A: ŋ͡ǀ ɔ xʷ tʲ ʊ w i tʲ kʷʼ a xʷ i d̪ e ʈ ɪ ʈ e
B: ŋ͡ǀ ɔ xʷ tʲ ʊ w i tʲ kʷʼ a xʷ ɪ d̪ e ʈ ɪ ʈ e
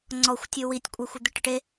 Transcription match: B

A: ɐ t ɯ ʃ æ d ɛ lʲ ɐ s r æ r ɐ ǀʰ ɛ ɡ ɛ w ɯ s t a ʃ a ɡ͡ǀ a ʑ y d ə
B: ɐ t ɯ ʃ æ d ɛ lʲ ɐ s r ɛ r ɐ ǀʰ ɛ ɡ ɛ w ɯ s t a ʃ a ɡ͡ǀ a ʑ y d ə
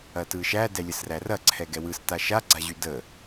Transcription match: A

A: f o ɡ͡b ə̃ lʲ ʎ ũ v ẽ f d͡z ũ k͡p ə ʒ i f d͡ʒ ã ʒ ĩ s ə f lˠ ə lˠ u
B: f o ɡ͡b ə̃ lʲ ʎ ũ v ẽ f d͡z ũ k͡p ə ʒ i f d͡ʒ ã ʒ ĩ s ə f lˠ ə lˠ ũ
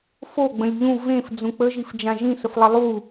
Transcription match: A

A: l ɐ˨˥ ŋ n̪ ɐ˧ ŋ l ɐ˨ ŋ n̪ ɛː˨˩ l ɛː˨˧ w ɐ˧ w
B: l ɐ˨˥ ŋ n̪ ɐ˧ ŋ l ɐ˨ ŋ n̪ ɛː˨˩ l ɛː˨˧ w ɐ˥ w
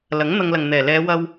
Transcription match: A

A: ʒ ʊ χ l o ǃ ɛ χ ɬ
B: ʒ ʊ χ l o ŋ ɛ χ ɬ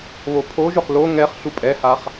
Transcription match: B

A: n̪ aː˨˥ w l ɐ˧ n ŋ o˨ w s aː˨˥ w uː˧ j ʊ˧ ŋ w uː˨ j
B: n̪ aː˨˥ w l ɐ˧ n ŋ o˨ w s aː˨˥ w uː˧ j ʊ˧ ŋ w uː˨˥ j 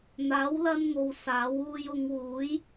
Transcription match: B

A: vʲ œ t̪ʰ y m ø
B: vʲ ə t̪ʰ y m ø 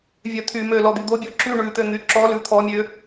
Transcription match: A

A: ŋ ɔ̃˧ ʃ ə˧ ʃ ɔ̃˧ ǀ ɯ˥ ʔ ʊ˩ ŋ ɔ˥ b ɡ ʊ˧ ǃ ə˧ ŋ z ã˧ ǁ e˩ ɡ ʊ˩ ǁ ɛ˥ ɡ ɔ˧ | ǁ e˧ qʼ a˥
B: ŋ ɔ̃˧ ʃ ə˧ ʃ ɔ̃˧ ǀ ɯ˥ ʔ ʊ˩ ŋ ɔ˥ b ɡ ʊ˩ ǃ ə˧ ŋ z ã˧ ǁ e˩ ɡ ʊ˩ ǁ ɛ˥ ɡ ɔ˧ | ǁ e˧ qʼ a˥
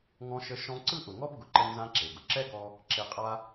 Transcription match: B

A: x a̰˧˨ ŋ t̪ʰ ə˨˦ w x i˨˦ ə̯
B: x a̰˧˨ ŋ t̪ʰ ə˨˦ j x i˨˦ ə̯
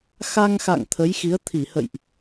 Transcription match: B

